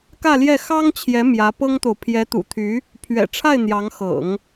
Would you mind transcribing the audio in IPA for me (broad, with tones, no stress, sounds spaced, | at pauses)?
k ä˥˧ l j ɛ˥˩ x ɑ˥ ŋ t͡ɕʰ j ɛ˧˥ m j ä˧˥ p ɤ˥ ŋ t̪ o˨ ʊ̯ pʰ j ɛ˧˥ t̪ ṵ˨˩ t̪ʰ y˧˥ | pʰ ɥ ɛ̰˨˩ ʈ͡ʂʰ a˥˩ ɪ̯ n̪ j ɑ˧˥ ŋ x ɤ̰˨˩˦ ŋ